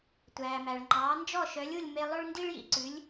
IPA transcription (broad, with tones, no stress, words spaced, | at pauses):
tʷæː˩mæ˩ɭ ŋ͡ǃɑː˩˥nd͡ʒɔ˥˩ ʃœ˩˥lʲ u˥˩lʲme˧lˠø˥ɭ ndi˥ɭjḭ˧ǀʉ˩˥lʲ